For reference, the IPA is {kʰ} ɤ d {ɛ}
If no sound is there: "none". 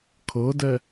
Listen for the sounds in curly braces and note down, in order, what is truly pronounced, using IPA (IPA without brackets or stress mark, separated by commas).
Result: kʰ, ɛ